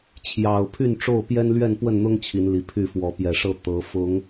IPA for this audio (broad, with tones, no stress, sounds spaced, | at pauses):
t͡ɕʰ j ɑ˨˩ ʊ̯ pʰ y˥˨ n ʈ͡ʂ o˥˨ ʊ̯ p j ɛ˦ n l ɥ ɛ˥˨ n p w ə˥˨ n n̪ ʊ˦ ŋ t͡ɕʰ i˨˦ n l i˨˩ pʰ y˥˨ f w ɔ˨˦ p j ɛ˨˩ ʂ ɤ˥˨ t̪ ɤ˨˦ f ʊ˨˦ ŋ